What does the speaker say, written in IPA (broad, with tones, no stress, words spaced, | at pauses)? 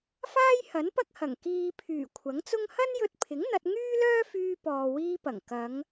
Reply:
faː˥jhɐ˨˥npɐ˥k̚hɐ˨˩ŋ kiː˨pʰyː˨˩ kʷʰɐ˨˥ŋt͡sʊ˥ŋ hɐ˥njɵ˧t̚pʰɪ˨˥ŋ n̪ɐ˧t̚ŋyː˥lœː˥fyː˧ pɔː˨wiː˧pɐ˨˩ŋ kɐ˨˧ŋ